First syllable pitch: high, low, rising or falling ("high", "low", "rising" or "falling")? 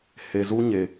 low